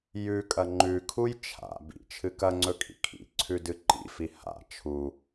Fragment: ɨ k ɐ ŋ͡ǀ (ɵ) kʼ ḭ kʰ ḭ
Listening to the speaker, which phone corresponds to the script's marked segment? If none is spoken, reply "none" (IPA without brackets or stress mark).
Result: ɵ